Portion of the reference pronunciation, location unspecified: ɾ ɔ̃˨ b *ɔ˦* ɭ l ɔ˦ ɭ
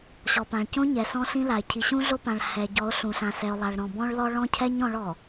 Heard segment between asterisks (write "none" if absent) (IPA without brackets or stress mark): ɔ̃˦